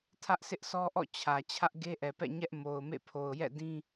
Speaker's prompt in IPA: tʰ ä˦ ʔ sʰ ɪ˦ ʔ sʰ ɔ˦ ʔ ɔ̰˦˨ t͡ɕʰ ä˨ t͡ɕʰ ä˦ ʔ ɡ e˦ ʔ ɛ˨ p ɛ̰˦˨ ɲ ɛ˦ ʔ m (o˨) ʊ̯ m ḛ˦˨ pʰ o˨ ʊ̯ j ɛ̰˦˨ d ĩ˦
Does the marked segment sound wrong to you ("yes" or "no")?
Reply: no